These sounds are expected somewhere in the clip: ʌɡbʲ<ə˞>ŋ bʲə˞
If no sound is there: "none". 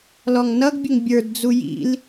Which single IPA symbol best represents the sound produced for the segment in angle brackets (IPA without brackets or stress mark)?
ə